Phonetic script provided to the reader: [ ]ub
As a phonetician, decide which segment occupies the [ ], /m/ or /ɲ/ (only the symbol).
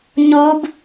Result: ɲ